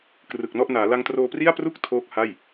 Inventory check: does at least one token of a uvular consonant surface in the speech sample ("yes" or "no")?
no